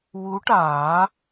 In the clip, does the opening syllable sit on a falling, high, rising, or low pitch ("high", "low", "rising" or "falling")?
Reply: rising